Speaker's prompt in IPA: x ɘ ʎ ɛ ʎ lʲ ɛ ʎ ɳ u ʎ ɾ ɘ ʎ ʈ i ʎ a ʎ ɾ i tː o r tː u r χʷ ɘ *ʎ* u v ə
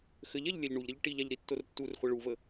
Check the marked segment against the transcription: incorrect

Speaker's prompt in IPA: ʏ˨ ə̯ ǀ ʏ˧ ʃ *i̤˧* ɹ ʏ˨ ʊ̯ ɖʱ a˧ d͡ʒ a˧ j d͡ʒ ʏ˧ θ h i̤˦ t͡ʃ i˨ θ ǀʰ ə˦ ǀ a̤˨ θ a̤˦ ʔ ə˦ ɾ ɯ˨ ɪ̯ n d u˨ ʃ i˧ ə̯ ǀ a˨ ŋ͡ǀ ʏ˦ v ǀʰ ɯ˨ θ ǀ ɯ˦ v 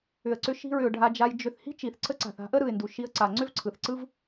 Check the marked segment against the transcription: correct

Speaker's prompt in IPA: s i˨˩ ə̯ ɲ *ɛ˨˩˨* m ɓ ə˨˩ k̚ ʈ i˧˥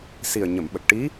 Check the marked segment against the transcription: incorrect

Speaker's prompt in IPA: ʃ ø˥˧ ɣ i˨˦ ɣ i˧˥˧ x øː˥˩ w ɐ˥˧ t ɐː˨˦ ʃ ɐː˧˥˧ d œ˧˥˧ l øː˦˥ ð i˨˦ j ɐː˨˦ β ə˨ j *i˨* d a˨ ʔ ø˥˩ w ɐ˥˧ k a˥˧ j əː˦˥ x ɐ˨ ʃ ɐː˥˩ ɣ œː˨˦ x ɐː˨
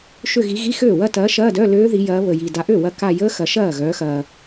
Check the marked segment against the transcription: correct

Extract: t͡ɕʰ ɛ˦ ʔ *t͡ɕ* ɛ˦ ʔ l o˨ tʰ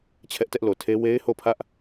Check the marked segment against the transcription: incorrect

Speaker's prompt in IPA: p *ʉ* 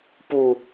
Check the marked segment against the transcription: incorrect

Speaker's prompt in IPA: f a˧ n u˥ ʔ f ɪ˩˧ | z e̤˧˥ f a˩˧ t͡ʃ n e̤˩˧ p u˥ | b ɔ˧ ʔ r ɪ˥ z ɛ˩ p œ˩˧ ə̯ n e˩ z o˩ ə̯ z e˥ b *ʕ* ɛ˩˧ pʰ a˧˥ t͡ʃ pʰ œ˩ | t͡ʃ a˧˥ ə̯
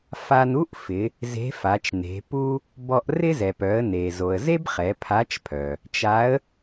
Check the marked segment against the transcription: incorrect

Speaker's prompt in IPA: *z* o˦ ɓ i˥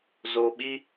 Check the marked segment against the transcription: correct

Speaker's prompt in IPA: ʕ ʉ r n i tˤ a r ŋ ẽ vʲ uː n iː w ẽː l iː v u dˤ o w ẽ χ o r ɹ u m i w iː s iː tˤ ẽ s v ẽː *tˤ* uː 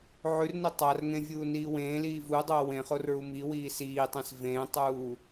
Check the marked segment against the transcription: correct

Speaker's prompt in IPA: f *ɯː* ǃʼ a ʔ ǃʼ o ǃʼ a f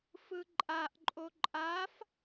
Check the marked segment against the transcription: incorrect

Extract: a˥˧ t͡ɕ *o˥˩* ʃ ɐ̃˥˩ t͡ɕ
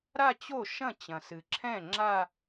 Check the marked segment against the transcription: correct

